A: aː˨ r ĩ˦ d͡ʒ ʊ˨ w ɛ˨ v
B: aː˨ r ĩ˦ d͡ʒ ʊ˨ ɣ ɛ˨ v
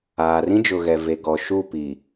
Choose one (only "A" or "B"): B